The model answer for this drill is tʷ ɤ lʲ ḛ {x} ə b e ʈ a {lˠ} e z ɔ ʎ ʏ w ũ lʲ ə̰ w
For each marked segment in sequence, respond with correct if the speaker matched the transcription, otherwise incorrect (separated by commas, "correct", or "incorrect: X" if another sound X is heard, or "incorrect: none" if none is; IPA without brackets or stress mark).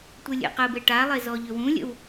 incorrect: q, correct